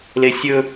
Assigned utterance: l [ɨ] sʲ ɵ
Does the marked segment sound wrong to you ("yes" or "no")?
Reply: yes